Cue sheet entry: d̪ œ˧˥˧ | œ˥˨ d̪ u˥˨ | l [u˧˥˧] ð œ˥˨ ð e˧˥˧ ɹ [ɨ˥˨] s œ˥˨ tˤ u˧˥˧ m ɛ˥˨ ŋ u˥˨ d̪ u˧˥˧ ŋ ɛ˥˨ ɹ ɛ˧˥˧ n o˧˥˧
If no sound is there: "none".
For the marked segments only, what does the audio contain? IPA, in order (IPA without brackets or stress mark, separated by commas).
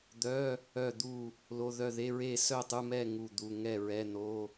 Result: o˧˥˧, e˥˨